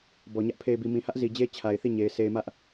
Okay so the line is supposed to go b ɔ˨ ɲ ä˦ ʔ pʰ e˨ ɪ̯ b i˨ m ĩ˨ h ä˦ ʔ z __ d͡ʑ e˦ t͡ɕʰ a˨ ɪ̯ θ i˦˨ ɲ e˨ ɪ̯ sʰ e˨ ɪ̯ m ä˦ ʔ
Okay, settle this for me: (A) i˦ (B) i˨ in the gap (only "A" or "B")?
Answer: B